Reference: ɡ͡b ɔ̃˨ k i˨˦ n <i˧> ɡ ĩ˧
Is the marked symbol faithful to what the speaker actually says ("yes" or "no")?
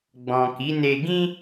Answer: no